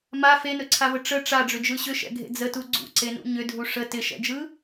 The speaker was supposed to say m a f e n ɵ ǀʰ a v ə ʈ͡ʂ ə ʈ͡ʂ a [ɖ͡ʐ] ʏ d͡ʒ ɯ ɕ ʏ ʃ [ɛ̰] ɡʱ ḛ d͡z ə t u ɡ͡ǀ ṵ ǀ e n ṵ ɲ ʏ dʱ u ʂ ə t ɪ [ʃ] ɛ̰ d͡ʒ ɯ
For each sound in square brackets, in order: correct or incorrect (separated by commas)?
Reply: correct, correct, correct